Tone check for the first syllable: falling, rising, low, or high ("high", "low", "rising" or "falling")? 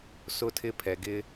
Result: high